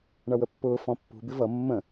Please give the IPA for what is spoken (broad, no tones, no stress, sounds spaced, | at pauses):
ɳ ʌ w ə pː ʊː f ɔ̃ pː ṳ b ɪ v ʌ mː ə̃